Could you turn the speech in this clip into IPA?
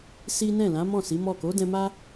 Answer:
si˦ nɛ̃˦˨lã˨˦mɔ̃˦˨ si˨˦mɔ˦˨ ko˨˦dɛ̃˧ma˦

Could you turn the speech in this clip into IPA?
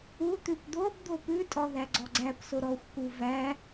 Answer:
ut̪ʉp d̪ob d̪opʉtʼɔ ðæɡ͡ǀɔɡ͡ǀæpso ɾɔxʷku væ

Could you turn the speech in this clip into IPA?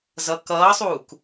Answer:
zʌ kʌːsˤuːk

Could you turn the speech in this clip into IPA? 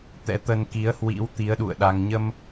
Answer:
t̪ɛ̰˧˥t̪ə˧nki˨˦ə̯ hwḭ˧˥w t̪i˨˦ə̯ɗṵ˧˨ə̯ɗa˧ŋ ɲə˧m

